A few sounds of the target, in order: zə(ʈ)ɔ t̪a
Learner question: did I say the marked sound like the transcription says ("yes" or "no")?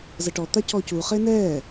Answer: yes